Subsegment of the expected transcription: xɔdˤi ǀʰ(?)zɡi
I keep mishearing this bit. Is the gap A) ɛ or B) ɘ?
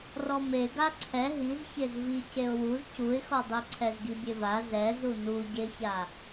A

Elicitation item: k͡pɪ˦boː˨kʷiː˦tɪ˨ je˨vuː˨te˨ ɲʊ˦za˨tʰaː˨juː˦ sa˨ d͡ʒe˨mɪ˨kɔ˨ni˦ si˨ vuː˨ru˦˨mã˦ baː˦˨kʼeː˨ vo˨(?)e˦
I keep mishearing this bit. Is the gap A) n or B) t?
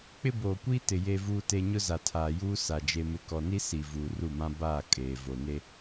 A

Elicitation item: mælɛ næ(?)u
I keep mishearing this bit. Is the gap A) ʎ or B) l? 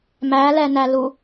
B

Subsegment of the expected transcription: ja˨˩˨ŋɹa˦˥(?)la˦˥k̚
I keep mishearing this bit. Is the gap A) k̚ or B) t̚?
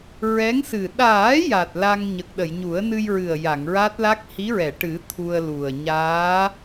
B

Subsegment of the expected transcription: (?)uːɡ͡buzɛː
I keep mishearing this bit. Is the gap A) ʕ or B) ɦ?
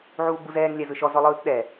A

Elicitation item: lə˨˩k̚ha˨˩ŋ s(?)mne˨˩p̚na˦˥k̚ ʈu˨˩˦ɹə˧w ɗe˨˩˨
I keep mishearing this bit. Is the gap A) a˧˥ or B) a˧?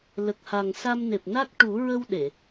B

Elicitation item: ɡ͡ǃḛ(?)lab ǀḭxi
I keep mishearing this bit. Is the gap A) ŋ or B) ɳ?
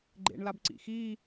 B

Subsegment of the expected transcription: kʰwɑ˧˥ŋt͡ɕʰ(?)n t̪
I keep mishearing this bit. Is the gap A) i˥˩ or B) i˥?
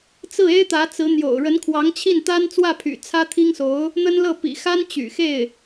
A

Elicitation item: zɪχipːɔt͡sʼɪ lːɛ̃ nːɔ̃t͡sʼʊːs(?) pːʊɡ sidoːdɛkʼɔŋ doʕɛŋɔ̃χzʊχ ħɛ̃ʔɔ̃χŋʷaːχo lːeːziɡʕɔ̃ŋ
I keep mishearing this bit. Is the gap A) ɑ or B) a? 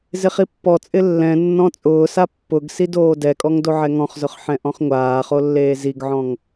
B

